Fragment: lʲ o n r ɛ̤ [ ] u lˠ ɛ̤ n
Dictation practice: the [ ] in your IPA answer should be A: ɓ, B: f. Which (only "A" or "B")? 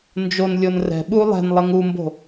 A